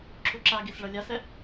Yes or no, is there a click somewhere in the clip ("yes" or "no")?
yes